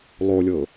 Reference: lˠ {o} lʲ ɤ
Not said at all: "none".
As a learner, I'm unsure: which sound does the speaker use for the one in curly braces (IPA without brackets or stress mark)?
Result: o